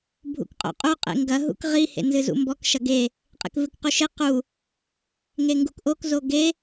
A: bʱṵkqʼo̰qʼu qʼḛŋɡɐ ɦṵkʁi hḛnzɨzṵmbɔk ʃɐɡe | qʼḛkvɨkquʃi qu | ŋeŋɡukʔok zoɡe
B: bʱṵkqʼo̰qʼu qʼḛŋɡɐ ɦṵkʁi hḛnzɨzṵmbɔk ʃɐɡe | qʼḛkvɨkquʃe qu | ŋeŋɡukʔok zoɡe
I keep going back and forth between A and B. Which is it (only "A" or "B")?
B